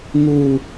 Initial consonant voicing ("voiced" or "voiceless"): voiced